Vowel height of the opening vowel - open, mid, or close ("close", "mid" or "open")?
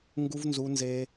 close